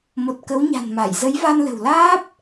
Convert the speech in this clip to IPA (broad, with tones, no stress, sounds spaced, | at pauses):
m o˨˩ t̚ k ə˨˦ w ɲ a̤˨˩ n m a˧˩ j z ə˨˦ j v a˧ n l ə̤˨˩ w l aː˦˥ p̚